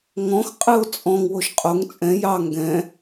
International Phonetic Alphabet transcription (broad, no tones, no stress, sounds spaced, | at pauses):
ŋ ɔ̃ x qʼ ɨ o̯ t͡sʼ ɔ̃ ŋ w o ʃ qʼ o ŋ t͡sʼ ɛ̃ j ɑ ŋ ɡ ɛ̃